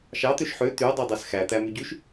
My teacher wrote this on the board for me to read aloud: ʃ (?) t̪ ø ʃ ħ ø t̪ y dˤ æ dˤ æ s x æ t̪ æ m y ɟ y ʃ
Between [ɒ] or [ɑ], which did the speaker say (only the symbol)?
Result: ɑ